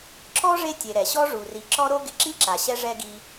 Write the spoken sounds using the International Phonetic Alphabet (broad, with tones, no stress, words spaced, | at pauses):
ǁɔ˥ʐe˦ tʲe˨ɾɛ˩ɕɔ˥ ʐu˩ri˨ ǁɔ˥ɾo˥ ɡɪ˨ǁi˥ǁa˩ɕɛ˦ ʐɛ˥ɡi˦